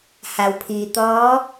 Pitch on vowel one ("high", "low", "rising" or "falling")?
low